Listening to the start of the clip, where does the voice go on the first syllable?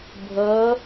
rising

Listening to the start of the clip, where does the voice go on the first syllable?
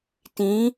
rising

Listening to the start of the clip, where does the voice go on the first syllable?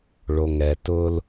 low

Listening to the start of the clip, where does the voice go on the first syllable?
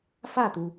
falling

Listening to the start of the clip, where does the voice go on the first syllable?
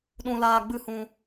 high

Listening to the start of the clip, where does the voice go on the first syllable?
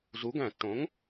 rising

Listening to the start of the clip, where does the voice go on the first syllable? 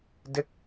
falling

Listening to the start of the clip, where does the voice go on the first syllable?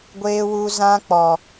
high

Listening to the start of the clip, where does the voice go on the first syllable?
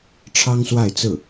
high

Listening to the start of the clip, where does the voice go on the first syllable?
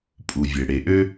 low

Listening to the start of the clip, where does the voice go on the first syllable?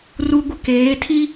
high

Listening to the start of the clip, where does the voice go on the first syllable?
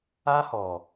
high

